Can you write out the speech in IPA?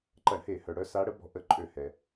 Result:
ǃ ɐ˧˩˧ ɳ h e˧˩˧ h œ˩ ɽ œ˨˦ s a˨˦ ɽ ə˨˦ b ɔ̤˨˦ ʔ ə˧˩˧ ǃʼ ø˧˩˧ h ɛ˩

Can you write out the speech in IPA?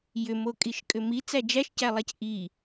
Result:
j ʏ m o kʼ i ʃ kʼ ʏ m i t͡s æ d͡ʒ æ ʃ c æ lˠ æ c ʔ i

